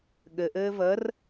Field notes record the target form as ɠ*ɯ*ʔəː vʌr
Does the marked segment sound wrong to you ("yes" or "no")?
yes